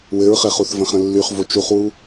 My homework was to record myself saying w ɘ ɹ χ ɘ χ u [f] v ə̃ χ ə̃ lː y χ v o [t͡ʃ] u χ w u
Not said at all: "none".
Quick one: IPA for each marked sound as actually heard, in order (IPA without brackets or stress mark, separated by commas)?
θ, t͡ʃ